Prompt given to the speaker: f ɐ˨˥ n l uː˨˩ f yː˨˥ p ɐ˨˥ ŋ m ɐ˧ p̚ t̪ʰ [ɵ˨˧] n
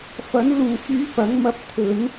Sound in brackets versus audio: correct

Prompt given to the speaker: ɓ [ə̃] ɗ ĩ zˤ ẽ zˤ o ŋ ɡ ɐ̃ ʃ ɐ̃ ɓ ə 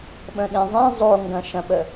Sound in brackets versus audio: correct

